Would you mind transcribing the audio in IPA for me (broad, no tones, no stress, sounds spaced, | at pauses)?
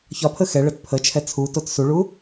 ç ɒ pʰ ə x ɛ ɭ ə t pʰ ə t͡ʃʰ ɛ t͡sʰ u t o t s u ɭ u